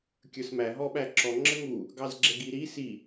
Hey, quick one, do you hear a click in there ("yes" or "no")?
yes